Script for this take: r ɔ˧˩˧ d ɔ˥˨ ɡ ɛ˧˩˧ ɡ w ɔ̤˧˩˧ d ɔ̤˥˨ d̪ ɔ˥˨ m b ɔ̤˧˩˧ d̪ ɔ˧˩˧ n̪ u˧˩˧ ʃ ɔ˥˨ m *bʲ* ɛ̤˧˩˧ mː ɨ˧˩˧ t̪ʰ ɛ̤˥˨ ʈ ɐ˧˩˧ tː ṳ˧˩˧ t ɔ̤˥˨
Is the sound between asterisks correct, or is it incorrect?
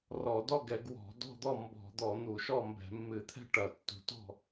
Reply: incorrect